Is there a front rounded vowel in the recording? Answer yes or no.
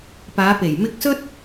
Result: no